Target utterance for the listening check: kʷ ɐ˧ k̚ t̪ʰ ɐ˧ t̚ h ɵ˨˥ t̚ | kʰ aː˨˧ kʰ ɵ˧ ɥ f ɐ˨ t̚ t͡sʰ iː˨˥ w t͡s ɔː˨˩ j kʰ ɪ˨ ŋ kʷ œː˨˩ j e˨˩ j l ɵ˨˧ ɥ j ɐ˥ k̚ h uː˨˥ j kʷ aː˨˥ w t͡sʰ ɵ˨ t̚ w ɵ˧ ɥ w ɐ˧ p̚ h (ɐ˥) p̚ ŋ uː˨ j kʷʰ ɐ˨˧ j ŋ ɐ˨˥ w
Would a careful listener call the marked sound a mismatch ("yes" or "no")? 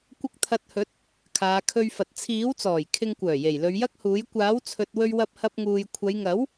yes